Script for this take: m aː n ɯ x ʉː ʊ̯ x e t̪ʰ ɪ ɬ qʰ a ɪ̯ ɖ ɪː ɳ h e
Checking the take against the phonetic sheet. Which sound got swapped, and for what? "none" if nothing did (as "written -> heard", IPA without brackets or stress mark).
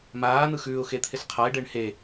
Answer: none